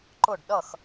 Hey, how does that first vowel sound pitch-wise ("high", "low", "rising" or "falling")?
falling